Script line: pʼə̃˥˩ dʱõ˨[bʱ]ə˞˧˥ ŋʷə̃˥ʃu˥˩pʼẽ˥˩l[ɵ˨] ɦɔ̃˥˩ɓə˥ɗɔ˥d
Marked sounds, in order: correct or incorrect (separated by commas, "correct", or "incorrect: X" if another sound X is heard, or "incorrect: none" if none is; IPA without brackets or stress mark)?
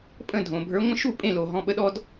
correct, incorrect: o˨